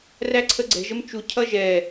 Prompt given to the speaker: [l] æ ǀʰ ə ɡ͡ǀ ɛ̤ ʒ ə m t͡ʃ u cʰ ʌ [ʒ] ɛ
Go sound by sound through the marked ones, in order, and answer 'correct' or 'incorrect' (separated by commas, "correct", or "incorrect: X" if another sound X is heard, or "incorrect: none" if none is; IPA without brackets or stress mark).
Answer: incorrect: r, correct